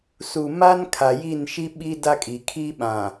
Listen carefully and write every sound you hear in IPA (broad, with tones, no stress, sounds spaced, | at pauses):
s u˨ m a˦ n kʰ a˨ j i˦˨ n ʃ i˦ ɓ i˦ d a˦ kʼ i˨ kʰ i˦ ɓ ã˨